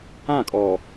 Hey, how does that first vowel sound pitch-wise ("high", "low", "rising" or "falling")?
falling